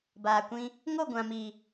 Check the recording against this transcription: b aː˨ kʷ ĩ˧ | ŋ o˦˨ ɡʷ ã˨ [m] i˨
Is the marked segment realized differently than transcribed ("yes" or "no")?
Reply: no